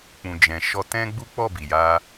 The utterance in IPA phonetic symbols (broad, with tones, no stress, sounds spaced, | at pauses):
k͡p ũ˨ d͡ʒ ɛ̃˨ ʃ ɔ˧ t ɛ̃˦ ɡ͡b u˦ k͡p ɔ˦˨ b i˨ j a˧